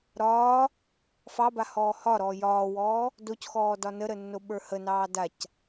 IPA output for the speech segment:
ɾɒː | fɑba hɔːhɒɾɔː jɒːwɔː | docxɔː dɒnəɾə nːoɓə˞hənɑː dac

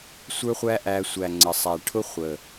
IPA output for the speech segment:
sʷə˞˦χʷæ˦ʔæ˧ sʷæ˨ŋ͡ǀə˨sˤæ˨ ʈʰʊ˦χʷə˨

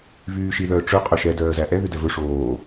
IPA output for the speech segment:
vyːʃi ðœːʈ͡ʂɵ qʼɵʃɛ dœːzæʔɛ ðydɛvɵ ʂoː

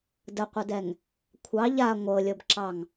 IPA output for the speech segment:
dəqʷədɛŋ | kʷʰɑ ʎa ŋʷɤlʲɤbǁɑŋ

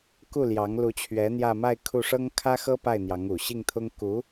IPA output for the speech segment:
ku˥˩ljɑ˧˥ŋlu˧˥t͡ɕʰɥɛ˧˥ n̪jä˥˧ma˥˧ɪ̯kʰu˥˩ʂɤ˥ŋ kʰä˥xɤ˥pa˥˩ɪ̯ n̪jɑ˧˥ŋu˨˩ ɕi˥˩ŋt̪ʰʊ˥ŋ ku˧˥

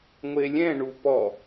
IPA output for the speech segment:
ŋʷelʲɛ̃ ɳupɔ

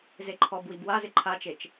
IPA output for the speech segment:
zeǃʰɔbwib wazɪ ǃʰat͡ʃet͡ʃ

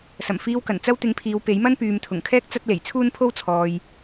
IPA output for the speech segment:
sɐ˨˩mfiː˧wkɐ˨˩n t͡sɐ˥wt̪ɪ˧ŋpʰiː˨˧w pe˨˥jmɐ˥n pyː˨mt̪ʰʊ˨˩ŋkʰɛː˥k̚ t͡sɐ˥t̚le˨˩j t͡sʰuː˥npʰo˥w t͡sʰɔː˨j

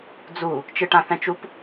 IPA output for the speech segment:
d͡zu | t͡ʃɨʈãθɛ̃t͡ʃup

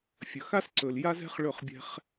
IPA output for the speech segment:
fʲɵ˨xa˦sǀɵ˨l ja˦zɛ̤˦χɭɵ˦˨χ bʲɛ̤˧χ

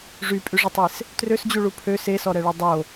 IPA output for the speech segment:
ʐypʼyʐətˤes | trøsd͡ʑuɭu pʰøs esɔɾɛɭy dˤo

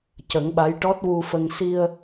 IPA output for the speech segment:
cə˨˩˦ŋɓa˧˥j ʈɔ˦˥t̚wu˧fə˧ŋ si˧ə̯

